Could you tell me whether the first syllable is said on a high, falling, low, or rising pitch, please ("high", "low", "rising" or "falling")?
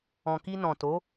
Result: low